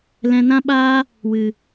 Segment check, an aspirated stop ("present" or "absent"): absent